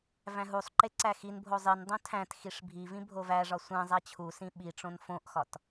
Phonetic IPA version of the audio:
v æ̃ ɦ u sˤ ǃ e ǀ æ x i n bʱ o zˤ i n dˤ õ tʰ æ̃ t x i ʂ bʱ i v ĩ bʱ o v æ ʐ ɒ sʷ æ̃ zˤ æ t͡ɕʰ u s ĩ ɓ i ʈ͡ʂ õ n f õ ʔ x ɒ t

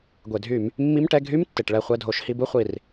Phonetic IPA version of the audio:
ɡʷ e˩ dʱ y˧˩˧ m | mː i˧˥˧ m ʈ ɛ˧˥˧ ɡʱ y˧˥˧ m tː e˩ ʈ ɭ ɛ˦˨ χʷ ɛ˦˨ dʱ o˧˩˧ ʃ h i˦˨ b u˥ χʷ i˩ r

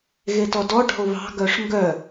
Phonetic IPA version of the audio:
ɣ e t ɔ d ɔ ɖ ɔ̤ ʊ̯ β ɑ̤ ɡ œ ʂ ŋ ɡ œ

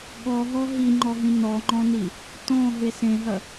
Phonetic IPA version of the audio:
ɠ ɔ ɦ ɔ ɦ i ŋ͡ǃ ɔ ɦ ĩ n ɔ ŋ͡ǃ ɔ̃ n i | t ɔ̃ ɦ e s ẽ ɦ ɐ

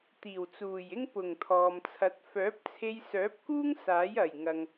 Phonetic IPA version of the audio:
t̪ iː˨˩ w t͡s uː˨˩ j ɪ˥ ŋ p ʊ˨˩ ŋ t̪ʰ ɔː˨ m t͡sʰ ɐ˨˥ t̚ f œː˨˥ p̚ t͡sʰ e˧ j s œː˨˥ p̚ k uː˥ ŋ s aː˨˥ j ɐ˨˩ j ŋ ɐ˨ ŋ

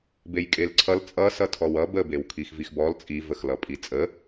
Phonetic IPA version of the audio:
b e j kʼ e l ǀʰ ʌ l t͡sʼ ʌ s ʌ tʰ ɔ w ʌ b ə b e w kʰ i x v i x b ɔ l t͡sʼ i v ə x l ʌ pʼ i t͡sʼ ə

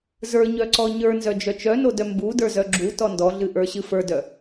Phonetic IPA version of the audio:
z ə˞ ɲ œ ǀ ɔ ɲ ə˞ n z œ d͡ʒ œ t͡ʃ œ n o d œ m b u d ə˞ z œ ɡ͡ǁ u t ɔ n d ɔ ɮ ɨ ʔ ə˞ ɕ ɨ f ə˞ d œ

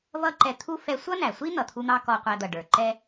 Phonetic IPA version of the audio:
v ʌ˥ ǃ ɛ˧ t̪ʰ u˥ f ɛ˧ sʷ ʌ˥ n æ˩ sʷ i˥ n̪ ʌ˩ t̪ʰ u˥ n̪ ɑ˥ k ɔ˧ qʷ æ˧ d̪ ʌ˩ ɖ ə˞˩ ǃ ɛ˥

